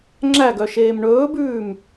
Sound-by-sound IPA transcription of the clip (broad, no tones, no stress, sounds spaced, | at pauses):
ŋ͡ǁ æ ɡ œ ʃ eː m ɳ ɵː b ʉː m